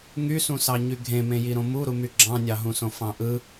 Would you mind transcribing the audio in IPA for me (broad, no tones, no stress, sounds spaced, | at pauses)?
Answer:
ŋ y s ũ s ɑ ɲ y ɡʱ ẽ m ẽ j i ɾ õ m u ɾ u m y ɡ͡ǁ ɑ̃ nʲ ɑ ɦ ũ s õ f ɑ̃ ʔ ɯ